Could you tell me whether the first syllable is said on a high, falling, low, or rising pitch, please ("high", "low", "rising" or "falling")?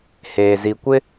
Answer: low